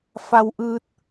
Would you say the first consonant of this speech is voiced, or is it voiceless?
voiceless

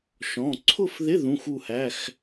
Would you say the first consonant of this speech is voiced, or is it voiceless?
voiceless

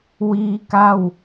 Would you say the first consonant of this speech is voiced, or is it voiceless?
voiced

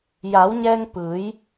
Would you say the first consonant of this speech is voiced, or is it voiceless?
voiced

